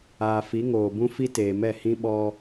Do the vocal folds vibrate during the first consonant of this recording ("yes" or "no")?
no